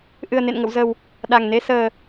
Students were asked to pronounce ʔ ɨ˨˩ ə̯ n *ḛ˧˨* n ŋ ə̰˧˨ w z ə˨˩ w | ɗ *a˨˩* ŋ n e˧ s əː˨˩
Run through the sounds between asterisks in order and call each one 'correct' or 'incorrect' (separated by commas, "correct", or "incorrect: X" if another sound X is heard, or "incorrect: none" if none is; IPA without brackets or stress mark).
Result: correct, correct